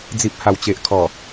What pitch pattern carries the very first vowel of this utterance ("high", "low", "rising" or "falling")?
low